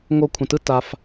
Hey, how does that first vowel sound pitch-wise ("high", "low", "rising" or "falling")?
falling